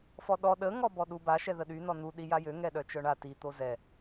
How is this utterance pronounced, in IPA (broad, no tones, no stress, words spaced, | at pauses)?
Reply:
fɔɗɔ ɗə ŋɔbɔɗuba ʃɛðəɗy nɔnu ɗijajø ŋɛɗœt͡ʃœɳa ti t̪ozɛ